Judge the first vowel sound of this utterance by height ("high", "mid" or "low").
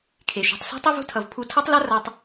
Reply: mid